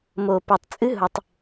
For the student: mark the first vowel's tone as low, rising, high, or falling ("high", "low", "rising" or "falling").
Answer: low